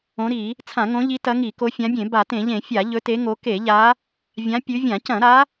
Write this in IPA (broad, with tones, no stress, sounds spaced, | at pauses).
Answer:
õ˨˦ ɾ i˧˩˧ | t͡sʰ ã˧˩˧ ŋ õ˨˦ ʎ i˨˦ t ɐ˨˦ ŋ i˧˩˧ k o˨˦ fʲ ã˨˦ bʲ ẽ˧˩˧ b a˧˩˧ t ẽ˧˩˧ ʎ ẽ˧˩˧ fʲ a˧˩˧ ʎ ɵ˨˦ t e˨˦ ŋ o˨˦ k e˧˩˧ ʎ a˨˦ | vʲ ã˨˦ pʲ ʉ˨˦ vʲ ã˧˩˧ c ɐ̃˧˩˧ ɾ a˨˦